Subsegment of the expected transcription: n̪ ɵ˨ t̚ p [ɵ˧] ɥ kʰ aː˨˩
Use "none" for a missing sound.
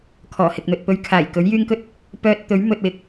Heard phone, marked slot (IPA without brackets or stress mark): ɵ˧